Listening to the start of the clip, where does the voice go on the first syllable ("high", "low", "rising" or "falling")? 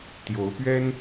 rising